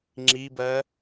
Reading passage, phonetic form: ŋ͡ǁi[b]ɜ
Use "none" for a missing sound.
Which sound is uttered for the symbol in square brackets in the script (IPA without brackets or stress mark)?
b